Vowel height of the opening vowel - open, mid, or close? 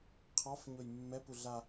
open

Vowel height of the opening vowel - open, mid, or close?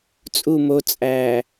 close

